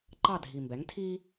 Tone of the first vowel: falling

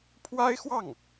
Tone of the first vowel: high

